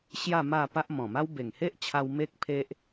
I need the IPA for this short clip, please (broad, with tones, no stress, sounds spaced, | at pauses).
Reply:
ɕ j a˥˧ m a˥˧ p a˦ ʔ m ɔ̃˨˩ m a˦ w b e˨˩ ŋ h e˦ ʔ t͡ɕʰ a˧ w m e˦ k̚ pʰ e˦ ʔ